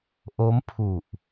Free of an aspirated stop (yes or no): no